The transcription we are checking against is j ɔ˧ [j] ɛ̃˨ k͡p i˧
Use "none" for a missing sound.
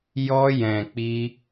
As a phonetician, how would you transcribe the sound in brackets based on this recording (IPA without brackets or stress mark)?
j